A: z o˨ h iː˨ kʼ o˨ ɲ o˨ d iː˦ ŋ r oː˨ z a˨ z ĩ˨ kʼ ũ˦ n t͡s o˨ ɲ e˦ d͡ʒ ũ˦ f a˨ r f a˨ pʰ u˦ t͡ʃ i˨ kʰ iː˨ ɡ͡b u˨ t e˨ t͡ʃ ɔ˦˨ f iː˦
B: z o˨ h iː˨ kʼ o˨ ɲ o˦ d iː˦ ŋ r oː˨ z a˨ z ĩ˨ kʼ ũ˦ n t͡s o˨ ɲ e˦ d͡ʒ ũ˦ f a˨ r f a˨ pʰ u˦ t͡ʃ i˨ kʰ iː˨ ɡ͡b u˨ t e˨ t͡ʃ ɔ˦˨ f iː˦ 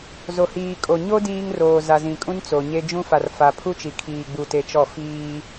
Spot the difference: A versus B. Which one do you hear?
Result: B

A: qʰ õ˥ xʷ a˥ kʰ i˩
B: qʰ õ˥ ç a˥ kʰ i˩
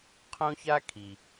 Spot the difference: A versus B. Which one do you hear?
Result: B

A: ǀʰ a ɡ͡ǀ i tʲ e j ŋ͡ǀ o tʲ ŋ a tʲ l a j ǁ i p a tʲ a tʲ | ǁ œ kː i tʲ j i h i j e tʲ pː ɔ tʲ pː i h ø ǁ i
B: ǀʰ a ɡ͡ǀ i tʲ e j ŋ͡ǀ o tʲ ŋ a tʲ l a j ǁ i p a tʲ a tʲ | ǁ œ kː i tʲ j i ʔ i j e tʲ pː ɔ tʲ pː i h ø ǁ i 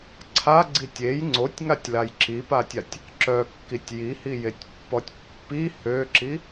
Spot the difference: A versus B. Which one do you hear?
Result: A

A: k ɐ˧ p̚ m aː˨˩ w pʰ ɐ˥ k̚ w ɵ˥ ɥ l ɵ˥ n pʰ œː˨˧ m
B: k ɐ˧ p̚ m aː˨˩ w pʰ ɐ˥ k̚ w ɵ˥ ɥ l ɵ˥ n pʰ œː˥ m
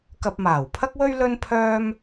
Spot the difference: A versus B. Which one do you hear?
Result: B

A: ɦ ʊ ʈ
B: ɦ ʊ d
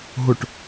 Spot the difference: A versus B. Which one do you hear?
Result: A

